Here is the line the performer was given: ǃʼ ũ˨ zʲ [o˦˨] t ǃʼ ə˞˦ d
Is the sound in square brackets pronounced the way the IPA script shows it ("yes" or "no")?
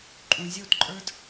yes